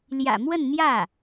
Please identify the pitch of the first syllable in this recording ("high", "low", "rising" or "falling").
low